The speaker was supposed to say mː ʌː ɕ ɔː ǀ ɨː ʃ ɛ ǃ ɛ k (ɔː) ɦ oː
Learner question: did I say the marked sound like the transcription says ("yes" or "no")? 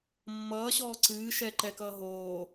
no